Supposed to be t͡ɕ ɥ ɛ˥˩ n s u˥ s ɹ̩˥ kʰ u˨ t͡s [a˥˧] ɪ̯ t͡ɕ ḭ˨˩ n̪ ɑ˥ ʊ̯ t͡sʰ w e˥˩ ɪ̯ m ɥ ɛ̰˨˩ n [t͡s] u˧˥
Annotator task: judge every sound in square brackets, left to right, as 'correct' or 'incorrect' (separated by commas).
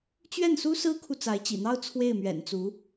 incorrect, correct